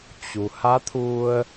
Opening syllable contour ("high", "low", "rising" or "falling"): low